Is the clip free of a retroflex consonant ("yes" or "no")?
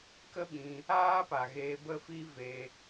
yes